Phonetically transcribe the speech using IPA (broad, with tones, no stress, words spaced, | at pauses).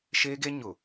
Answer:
ʃeː˦ɡe˦ ɲʊ˨